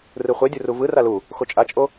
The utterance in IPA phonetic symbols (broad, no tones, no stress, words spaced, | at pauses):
rɯχʷɛdʲuru vɯ ralu | xot͡ʃʼat͡ʃʼo